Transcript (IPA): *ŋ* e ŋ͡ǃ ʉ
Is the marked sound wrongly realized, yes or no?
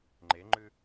yes